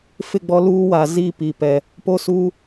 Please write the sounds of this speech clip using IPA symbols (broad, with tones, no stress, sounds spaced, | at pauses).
f ɪ˦˨ ɡ͡b ɔ˦ l uː˦ w a˨ z iː˦˨ p i˨ p ɛ˨ | p o˦ s uː˦